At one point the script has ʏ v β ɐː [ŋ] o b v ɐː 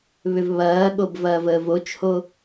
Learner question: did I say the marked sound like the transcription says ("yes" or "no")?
no